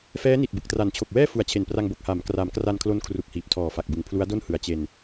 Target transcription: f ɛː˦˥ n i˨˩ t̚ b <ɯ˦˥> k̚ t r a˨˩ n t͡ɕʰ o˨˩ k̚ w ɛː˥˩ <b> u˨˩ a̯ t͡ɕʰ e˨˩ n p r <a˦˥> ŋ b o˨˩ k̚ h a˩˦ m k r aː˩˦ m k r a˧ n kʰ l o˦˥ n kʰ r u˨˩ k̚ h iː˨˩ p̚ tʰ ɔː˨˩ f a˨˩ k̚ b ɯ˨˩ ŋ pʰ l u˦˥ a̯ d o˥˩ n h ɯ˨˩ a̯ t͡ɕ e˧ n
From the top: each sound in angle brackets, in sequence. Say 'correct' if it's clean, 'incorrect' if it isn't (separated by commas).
incorrect, incorrect, incorrect